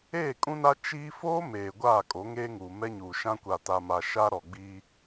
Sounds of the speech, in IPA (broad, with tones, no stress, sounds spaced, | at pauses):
eː˦˨ kʼ ũ˦ n a˦ t͡ʃ iː˦ f oː˦ m eː˨ ɡʷ aː˦˨ kʼ o˨˦ ŋ eː˦ ŋ uː˨ m ɛ˦ ɲ uː˨ ʃ ã˦ kʷ a˨ t a˨ m a˨ ʃ a˦ ɾ ɔ˨ ɡ͡b iː˦